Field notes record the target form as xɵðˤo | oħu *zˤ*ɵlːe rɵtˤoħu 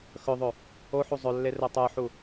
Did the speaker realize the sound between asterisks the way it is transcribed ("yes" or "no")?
yes